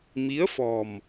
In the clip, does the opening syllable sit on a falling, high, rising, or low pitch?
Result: rising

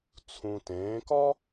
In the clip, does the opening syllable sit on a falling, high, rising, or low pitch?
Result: low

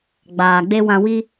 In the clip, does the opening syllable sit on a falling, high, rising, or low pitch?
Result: low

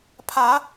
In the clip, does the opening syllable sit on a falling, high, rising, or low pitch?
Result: rising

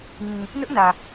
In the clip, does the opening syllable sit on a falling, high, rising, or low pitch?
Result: low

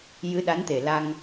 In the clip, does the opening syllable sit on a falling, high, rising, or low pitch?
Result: rising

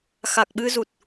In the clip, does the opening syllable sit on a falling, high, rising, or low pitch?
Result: low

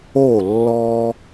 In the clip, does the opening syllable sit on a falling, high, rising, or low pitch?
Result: falling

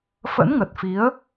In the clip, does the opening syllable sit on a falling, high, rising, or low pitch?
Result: rising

